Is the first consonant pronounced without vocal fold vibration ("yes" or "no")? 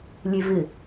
no